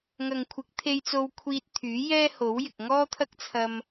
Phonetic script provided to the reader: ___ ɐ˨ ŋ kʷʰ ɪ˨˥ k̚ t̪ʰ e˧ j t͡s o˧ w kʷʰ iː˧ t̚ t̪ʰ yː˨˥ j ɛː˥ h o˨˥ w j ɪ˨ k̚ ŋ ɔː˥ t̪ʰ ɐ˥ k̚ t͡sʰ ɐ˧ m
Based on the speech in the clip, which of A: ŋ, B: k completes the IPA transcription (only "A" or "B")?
A